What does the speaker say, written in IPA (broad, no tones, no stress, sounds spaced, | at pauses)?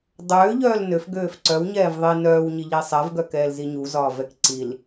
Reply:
dˤ øː ʎ œː l n ø f ɡ øː f ǀ œ w ɲ ɛː v ðˤ i n œː w ɲ i ʎ i sˤ ɛ v ɡ œ k ɛː l z i ɲ u z ɒː v ɛ k ǀ i l